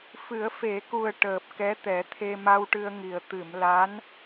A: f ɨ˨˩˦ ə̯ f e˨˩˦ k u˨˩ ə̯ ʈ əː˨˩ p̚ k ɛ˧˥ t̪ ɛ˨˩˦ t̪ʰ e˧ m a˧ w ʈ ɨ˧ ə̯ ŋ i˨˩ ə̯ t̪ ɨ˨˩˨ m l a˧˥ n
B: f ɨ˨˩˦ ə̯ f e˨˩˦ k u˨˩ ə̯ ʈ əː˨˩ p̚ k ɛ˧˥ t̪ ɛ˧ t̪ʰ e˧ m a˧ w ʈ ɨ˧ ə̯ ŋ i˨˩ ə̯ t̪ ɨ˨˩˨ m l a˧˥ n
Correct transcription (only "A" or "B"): A